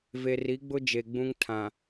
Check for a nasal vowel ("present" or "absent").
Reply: present